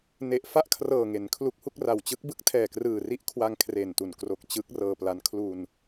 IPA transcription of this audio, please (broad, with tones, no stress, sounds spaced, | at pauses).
n e˨˩ ʔ f a˥˩ ʔ kʰ r ɤː˨˩ ŋ e˩˦ n kʰ l u˦˥ k̚ h u˥˩ k̚ r a˨˩ w t͡ɕ ɯ˦˥ k̚ b ɯ˦˥ k̚ tʰ ɛː˨˩ k r ɯː˨˩ r i˦˥ ʔ kʰ w a˧ ŋ kʰ r e˨˩ n t u˨˩ n k r o˨˩ k̚ t͡ɕ ɯ˦˥ k̚ r ɤː˧ p l a˦˥ n kʰ l u˧ n